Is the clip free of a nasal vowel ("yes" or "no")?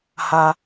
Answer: yes